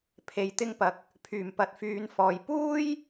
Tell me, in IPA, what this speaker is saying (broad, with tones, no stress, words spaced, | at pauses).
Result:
pʰe˧jt̪ɪ˥ŋpɐ˧k̚ | pʰyː˨˩mpɐ˨˥t̚ fyː˨˧nfɔː˨j puː˥j